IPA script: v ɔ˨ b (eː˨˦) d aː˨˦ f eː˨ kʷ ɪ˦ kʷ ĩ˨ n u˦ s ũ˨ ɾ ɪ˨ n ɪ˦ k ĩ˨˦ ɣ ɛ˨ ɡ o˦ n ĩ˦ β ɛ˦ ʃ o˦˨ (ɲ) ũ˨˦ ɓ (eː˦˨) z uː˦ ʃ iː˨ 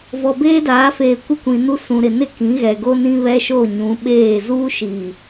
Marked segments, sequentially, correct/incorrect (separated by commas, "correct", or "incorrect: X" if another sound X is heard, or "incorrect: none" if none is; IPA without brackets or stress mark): incorrect: eː˦, correct, correct